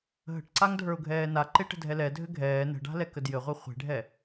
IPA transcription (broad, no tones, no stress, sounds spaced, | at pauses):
ɦ ə̤ ʈ ǀ a ŋ dʱ ə˞ ʊ̯ ɡʱ ɛː n a ǃ e ʈ ə̤ dʱ ɛ l ɛ dʱ ɘ ɡʱ ɛː n ə̤ ɖ a̤ l ɛ k ə d j ɘ ʁʷ e χʷ e̤ ɖʱ ɛ